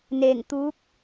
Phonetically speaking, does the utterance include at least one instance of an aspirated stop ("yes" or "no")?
no